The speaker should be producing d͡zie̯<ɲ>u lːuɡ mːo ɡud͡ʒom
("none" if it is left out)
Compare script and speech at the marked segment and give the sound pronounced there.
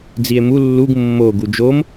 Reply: m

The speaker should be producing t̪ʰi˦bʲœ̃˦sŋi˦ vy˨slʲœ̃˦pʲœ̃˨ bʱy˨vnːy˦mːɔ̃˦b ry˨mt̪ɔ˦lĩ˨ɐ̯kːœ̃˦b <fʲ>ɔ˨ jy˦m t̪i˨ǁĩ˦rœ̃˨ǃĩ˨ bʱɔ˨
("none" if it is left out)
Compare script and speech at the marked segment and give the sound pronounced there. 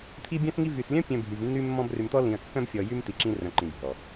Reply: fʲ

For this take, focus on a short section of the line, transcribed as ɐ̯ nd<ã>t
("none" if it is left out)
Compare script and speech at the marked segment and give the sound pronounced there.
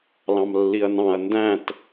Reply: æ̃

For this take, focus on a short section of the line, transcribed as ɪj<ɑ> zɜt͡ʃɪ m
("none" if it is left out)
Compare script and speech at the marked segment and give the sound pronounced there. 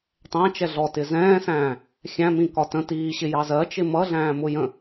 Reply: ɑ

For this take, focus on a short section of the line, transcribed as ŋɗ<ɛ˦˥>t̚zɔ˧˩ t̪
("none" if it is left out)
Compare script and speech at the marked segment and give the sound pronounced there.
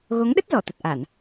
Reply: ə˦˥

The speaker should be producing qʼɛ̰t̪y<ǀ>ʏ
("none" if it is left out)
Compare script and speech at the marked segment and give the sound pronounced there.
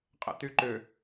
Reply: ǃ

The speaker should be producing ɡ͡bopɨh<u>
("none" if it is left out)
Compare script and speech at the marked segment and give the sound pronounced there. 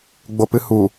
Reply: u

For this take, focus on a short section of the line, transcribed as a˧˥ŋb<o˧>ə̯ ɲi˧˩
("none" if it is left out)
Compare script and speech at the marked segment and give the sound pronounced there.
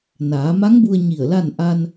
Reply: u˧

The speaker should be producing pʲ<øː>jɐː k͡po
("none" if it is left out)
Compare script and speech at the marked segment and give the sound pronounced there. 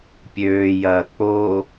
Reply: øː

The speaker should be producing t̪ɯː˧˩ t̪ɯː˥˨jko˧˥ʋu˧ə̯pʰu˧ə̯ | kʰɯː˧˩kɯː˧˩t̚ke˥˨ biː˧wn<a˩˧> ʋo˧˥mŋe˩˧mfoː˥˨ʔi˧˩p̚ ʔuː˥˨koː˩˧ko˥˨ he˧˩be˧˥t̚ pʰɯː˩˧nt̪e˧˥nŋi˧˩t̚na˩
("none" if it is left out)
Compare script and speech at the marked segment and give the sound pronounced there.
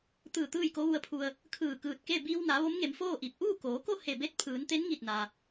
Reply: a˩˧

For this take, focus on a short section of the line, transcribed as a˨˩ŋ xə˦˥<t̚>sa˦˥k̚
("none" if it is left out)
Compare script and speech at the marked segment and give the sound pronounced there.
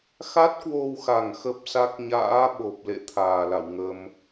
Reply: p̚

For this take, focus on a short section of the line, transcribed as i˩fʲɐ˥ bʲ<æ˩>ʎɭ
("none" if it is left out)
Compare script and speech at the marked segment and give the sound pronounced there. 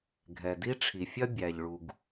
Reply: æ˩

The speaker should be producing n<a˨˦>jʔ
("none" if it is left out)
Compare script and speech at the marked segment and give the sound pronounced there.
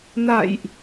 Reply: a̰˧˨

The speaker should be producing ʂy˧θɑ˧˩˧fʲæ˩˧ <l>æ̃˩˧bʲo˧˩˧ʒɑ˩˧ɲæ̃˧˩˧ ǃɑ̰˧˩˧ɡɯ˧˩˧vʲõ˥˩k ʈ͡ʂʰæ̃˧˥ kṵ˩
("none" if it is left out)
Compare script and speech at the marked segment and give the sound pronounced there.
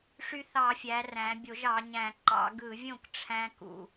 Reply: r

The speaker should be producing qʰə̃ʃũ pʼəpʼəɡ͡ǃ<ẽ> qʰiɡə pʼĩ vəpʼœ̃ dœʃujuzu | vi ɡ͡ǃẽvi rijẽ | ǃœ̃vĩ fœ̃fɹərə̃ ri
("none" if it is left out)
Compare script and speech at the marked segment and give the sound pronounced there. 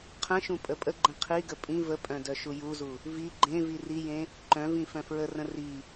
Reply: ẽ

